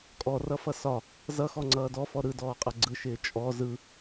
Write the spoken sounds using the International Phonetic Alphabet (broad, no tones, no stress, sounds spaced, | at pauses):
kʼ ɔ r ʌ f ʌ s ɒ | z ʌ x ɔ ŋ͡ǀ ʌː d ɔ f ɔ ɾ ɯ d ɔː qʼ ʌ ɡ͡ǀ ɯ ʃ ɪː t͡ʃʼ ɔ z ɯ